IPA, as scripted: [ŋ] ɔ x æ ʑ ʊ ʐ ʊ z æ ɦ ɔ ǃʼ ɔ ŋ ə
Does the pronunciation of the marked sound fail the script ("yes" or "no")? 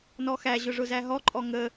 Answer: yes